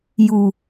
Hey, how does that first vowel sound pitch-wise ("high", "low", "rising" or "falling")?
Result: low